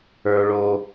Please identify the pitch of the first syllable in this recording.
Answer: high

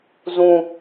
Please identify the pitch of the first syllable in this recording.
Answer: low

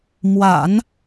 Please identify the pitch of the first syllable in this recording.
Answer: low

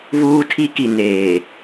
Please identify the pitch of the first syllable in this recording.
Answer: high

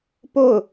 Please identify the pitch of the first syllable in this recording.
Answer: falling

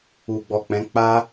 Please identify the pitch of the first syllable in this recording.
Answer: low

